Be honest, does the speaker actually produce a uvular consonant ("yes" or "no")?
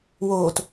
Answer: no